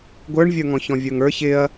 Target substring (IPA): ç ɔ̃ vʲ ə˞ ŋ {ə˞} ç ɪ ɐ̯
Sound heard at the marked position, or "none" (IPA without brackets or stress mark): ə˞